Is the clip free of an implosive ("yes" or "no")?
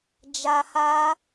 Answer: yes